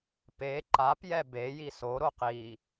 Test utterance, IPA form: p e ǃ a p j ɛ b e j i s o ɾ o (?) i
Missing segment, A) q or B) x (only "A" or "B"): A